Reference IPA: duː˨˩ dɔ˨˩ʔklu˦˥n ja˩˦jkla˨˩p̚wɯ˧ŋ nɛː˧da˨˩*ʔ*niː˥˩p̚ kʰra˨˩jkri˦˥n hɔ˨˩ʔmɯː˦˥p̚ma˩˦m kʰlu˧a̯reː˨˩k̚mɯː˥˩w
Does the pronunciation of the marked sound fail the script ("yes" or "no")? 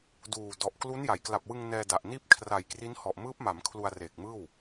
no